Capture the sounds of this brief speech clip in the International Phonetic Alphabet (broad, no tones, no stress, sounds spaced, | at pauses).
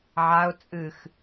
ʕ a ʊ̯ t͡sʼ ɨ x